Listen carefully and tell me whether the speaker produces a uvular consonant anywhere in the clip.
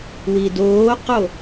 yes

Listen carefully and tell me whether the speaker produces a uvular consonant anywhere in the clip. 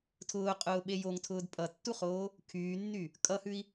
yes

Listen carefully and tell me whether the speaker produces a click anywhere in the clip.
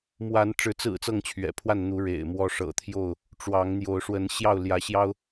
no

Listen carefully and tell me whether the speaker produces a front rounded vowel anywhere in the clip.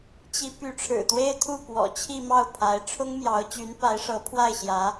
yes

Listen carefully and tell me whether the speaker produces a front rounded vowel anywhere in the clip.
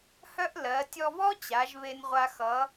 yes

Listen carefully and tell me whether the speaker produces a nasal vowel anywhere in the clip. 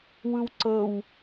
no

